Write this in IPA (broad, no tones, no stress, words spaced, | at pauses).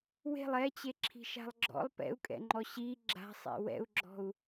we̤lˠ ɛt͡ɕeǁʰi̤ʃa̤lˠ ɡ͡ǁɔ̰lˠ pɛ̰u̯kʼɛ̰ŋ͡ǃɔ ɕi ɡ͡ǁa̤sˤḭ wɛ̰u̯ɡ͡ǁɔ̤u̯